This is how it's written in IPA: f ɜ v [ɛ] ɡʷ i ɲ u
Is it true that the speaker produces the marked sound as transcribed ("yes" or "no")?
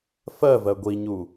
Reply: no